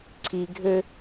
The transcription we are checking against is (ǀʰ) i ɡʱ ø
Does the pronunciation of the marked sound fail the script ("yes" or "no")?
no